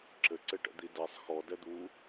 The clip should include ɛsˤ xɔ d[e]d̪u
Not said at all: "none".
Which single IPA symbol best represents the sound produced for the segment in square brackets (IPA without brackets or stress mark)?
ɛ